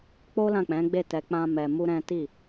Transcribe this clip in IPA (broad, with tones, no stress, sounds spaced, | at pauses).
k͡p o˦ l ã˦˨ k͡p ɛ̃˨˦ ɡ͡b e˦˨ t ɛ˧ k͡p ã˦ m ɛ˧ m u˦ ɾ ɛ̃˦ t i˦˨